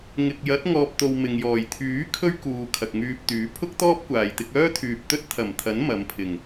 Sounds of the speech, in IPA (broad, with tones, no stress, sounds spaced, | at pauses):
ŋ ɪ˨ k̚ j ɐ˨˥ t̚ ŋ ɔː˨ p̚ t̪ o˨ w m ɪ˨ ŋ j ɔː˨˩ j t̪ʰ yː˨˥ kʰ ɵ˥ ɥ k uː˨ kʰ ɐ˨ k̚ ŋ yː˧ p̚ t̪ yː˨˥ pʰ ʊ˥ k̚ t̪ ɔː˥ p̚ kʷ aː˨ j t̪ ɪ˧ k̚ œː˥ t̪ʰ yː˨ p̚ t̪ ɵ˥ t̚ t̪ʰ ɐ˨˩ m t̪ʰ ɐ˨˥ n m ɐ˨˧ m pʰ ɪ˨˩ ŋ